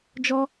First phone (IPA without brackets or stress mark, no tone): d͡ʒ